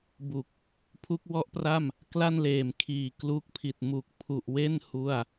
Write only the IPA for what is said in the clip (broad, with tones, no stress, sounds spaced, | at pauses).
b u˨˩ k̚ | pʰ u˦˥ k̚ w ɔ˦˥ ʔ p r a˥˩ m | k l a˥˩ n l eː˨˩ m kʰ iː˨˩ k l u˦˥ k̚ pʰ i˨˩ t̚ m u˨˩ k̚ pʰ u˨˩ ʔ w e˥˩ n h u˥˩ a̯